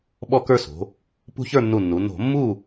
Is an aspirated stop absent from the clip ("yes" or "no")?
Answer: yes